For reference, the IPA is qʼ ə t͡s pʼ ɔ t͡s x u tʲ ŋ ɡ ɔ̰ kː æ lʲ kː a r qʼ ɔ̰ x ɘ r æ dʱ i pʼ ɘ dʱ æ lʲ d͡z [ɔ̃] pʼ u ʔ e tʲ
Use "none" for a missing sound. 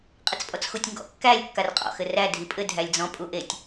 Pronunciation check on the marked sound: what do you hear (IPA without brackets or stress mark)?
ɔ̃